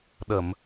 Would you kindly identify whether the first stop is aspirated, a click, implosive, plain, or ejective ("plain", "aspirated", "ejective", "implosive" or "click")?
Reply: implosive